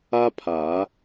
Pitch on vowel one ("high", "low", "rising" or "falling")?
high